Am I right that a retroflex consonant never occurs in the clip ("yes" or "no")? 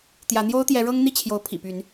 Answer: no